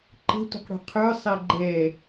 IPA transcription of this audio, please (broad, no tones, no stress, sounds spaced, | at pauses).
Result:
ǃ ə̤ tʷ ə̤ q ɽ ṳ qʰ ə˞ sˤ ɛ ɡ͡ǃ ɛ